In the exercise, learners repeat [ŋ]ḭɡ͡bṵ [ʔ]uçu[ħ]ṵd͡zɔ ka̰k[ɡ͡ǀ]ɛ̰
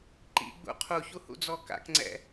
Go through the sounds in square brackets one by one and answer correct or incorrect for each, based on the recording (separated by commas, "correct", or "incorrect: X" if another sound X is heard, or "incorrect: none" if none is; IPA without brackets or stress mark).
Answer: incorrect: ǃ, incorrect: qʰ, incorrect: h, incorrect: ŋ͡ǀ